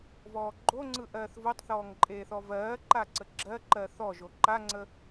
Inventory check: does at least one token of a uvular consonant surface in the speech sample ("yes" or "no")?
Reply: no